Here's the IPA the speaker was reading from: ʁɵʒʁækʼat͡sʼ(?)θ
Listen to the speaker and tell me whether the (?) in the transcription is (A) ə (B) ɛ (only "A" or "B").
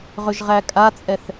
B